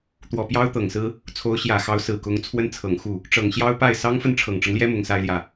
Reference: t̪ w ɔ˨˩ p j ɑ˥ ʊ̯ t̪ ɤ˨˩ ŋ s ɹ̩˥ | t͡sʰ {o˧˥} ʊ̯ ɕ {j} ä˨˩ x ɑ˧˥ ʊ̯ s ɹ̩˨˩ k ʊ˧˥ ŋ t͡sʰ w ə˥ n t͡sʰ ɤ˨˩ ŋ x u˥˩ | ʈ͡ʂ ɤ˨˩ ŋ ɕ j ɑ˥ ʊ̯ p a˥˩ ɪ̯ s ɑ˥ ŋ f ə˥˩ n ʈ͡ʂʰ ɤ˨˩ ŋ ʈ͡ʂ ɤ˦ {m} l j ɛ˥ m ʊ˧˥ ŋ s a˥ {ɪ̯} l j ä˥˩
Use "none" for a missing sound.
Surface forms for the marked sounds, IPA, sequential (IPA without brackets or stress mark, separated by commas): o˧˥, j, ŋ, ɪ̯